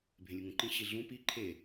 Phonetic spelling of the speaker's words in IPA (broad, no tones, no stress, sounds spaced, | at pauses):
bʱ ẽ lʲ u ŋ ũ ǃ ĩ ɕ i ɮ ũ p i ǃʰ e